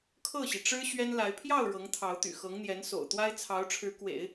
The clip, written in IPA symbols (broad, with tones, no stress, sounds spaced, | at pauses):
kʰ ɤ˥˩ ɕ i˩ ʈ͡ʂ ɻ̩˥ ɕ ɥ ɛ˥ n l a˧˥ ɪ̯ pʰ j ɑ˥˩ ʊ̯ ɻ ɤ˧˥ ŋ t̪ʰ ɑ˧˥ ʊ̯ t̪ y̰˨˩ x ɤ˧˥ ŋ n̪ j ɛ˧˥ n s o̰˨˩ ʊ̯ t̪ w a˥ ɪ̯ t͡sʰ ɑ˧˥ ʊ̯ ʈ͡ʂʰ ɻ̩˧˥ k w ḛ˨˩˦ ɪ̯